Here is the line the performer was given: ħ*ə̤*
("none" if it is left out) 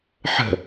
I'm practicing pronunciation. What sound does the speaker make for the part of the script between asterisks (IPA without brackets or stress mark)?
ə̤